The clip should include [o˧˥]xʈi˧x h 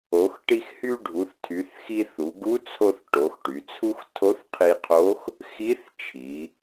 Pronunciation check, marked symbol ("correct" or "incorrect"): incorrect